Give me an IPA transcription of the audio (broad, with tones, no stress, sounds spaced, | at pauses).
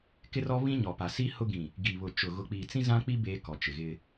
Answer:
k ɪ˦ r ɔ˦ β ĩ˦ ɲ ɔ˨ p a˨ s i˦ h ʊ˦ ɡ ĩ˨ | ɡ i˨ β ʊ˨ t͡ʃ ʊ˨ ɣ ʊ˨ k͡p iː˨ t͡s ĩ˦ z ã˦ k͡p i˦ b eː˦ k ɔ˨ t͡ʃ ɪ˨ ɣ ɪ˦